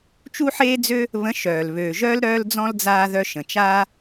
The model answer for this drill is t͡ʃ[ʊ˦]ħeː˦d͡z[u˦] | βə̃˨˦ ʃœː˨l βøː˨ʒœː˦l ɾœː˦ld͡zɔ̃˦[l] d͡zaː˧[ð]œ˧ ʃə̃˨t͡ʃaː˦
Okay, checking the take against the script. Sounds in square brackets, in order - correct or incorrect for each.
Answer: incorrect, incorrect, correct, correct

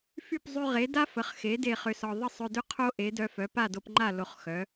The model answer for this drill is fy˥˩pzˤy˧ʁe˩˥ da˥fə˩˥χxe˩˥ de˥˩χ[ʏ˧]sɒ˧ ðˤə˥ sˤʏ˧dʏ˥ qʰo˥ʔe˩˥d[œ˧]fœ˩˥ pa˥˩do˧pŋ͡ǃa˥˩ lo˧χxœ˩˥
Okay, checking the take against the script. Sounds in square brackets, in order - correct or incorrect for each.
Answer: correct, correct

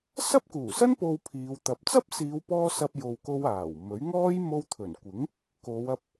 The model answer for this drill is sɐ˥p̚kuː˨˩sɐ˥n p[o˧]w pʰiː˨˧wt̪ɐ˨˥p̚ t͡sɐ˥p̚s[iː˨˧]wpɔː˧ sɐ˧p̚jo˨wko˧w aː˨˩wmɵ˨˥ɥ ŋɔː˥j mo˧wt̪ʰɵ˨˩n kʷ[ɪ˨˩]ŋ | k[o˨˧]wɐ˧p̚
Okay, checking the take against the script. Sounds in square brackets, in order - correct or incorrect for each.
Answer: correct, correct, incorrect, correct

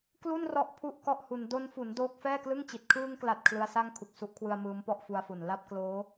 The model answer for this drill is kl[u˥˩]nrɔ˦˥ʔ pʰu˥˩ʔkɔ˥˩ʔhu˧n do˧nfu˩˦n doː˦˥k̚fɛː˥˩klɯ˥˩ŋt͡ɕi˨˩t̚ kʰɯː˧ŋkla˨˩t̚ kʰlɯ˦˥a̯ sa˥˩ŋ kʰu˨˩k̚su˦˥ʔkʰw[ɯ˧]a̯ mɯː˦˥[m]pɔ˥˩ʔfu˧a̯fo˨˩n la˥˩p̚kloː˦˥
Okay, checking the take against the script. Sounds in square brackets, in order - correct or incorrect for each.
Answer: correct, correct, correct

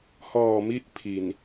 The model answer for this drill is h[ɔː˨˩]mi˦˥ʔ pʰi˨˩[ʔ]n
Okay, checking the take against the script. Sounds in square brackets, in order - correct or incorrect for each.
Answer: correct, incorrect

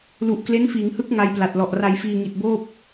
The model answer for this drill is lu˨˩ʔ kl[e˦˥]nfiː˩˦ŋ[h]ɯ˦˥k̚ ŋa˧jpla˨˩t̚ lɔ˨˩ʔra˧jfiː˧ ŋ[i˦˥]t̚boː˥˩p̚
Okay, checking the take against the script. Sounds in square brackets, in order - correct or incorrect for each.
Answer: correct, correct, incorrect

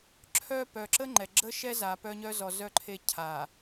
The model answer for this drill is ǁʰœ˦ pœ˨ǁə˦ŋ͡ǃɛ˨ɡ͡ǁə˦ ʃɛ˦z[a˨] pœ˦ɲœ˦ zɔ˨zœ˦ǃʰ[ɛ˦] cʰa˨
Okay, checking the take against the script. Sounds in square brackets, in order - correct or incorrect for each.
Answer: correct, incorrect

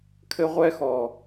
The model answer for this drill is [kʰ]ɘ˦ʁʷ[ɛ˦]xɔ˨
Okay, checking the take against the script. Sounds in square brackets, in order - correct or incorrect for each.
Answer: correct, correct

